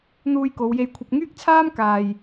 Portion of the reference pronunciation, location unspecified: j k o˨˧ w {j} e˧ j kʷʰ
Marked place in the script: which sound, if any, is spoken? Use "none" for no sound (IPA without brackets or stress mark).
j